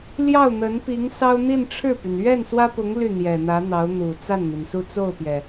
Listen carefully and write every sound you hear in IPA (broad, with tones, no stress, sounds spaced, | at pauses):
l j ɑ˥˩ ʊ̯ n̪ ə˧˥ n p i˧˥ ŋ s ɑ˥ ʊ̯ n̪ i˥˧ n ʈ͡ʂʰ ɻ̩˥˩ p y˩ n ɥ ɛ˥˩ n s w ä˥ p ʊ˧˥ ŋ l y˥˩ n̪ j ɛ˨˩ n̪ ä˧˥ n̪ ɑ˧˥ ʊ̯ n̪ u˨˩ t͡s a˥˩ n n̪ i˩ n s u˥˧ t͡s o˥˩ ʊ̯ p j ɛ˩